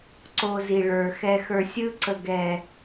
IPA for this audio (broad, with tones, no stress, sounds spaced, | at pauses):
ǀ o˧ z i˨ ɭ ə˞˨ x ɛ˧ x ə˞˧ sʲ ɯ˦ ǀ ə˨ ɡ ɛ˨